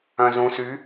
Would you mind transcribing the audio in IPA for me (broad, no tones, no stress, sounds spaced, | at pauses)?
œ̃ z ũ s y